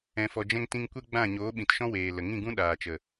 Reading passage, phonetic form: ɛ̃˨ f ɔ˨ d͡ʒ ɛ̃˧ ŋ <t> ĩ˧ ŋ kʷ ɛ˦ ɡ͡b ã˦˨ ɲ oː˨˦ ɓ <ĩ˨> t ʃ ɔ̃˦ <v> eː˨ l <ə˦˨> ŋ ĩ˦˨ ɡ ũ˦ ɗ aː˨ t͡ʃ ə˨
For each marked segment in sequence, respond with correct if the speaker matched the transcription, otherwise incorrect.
correct, correct, incorrect: w, incorrect: ə˨

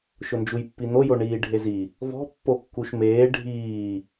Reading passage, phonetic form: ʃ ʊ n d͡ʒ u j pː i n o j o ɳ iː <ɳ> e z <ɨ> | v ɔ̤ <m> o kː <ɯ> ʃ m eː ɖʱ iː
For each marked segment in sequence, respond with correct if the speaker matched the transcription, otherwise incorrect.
incorrect: ɖʱ, incorrect: i, incorrect: pː, incorrect: u

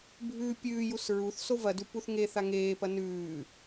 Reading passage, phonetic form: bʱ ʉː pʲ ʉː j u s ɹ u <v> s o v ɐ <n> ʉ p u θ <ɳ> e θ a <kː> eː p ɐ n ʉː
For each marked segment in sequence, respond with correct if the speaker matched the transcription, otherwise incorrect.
incorrect: θ, incorrect: d, incorrect: ŋ, incorrect: ŋ

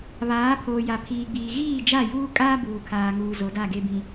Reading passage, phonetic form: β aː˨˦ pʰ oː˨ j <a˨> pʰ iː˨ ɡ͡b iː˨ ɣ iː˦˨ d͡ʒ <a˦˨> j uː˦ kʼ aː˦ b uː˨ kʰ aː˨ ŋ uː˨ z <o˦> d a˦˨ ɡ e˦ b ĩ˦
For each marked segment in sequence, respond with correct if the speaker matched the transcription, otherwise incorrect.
correct, correct, incorrect: o˨˦

